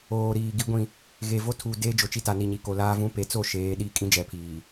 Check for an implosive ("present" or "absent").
present